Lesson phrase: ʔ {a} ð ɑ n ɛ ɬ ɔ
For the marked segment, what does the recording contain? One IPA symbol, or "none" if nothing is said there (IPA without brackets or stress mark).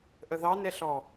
ə